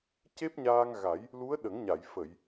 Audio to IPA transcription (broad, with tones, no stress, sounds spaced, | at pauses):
c e˦˥ p̚ ɲ aː˧ ŋ ɣ a˨˩˦ j | l u˧˥ ə̯ ɗ ə˨˩˦ ŋ ɲ a˨˩˨ j f ə˨˩˨ j